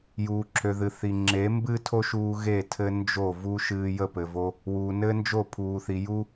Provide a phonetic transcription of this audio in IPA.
juː˨ǁʰø˨ðɨ˨ θi˨ŋ͡ǁe˨˦ mbɨ˦tʰo˦ʃuː˧ɣe˦˨ tʰɘ˧ nd͡ʒo˦˨vu˦ʃɨː˧ jə˦˨pɘ˨vo˧ | wuː˨nɘː˦ nd͡ʒo˦˨pʰuː˨θi˨ ju˦

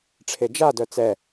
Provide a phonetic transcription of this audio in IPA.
ʈ͡ʂʰed͡ʒadœ t͡sɛ

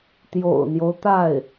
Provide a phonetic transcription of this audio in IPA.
t̪jo̰˨˩ʊ̯n̪jo˦ʊ̯t̪a˥˩ɪ̯

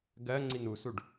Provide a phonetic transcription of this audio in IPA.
ɡɜ ŋ͡ǀinusuɖ

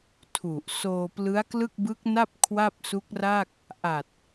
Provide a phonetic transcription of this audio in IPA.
tʰu˨˩ʔ soː˧plɯ˦˥a̯ klɯ˥˩k̚bɯ˦˥k̚na˥˩p̚ kʰwa˥˩p̚su˦˥k̚ra˥˩k̚ | ʔa˨˩t̚

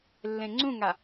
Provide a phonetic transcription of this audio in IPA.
lːẽŋ͡ǀũŋa

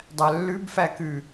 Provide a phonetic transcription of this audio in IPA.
dˤælːʉbfækʉ

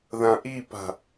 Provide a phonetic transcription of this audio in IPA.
ðãʔipa̤

